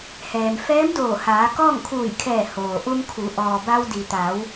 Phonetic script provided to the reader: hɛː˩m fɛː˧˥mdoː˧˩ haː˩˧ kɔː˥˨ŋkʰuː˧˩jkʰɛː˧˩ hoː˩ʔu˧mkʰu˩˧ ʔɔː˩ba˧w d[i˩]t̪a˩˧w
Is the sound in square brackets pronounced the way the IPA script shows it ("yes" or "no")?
yes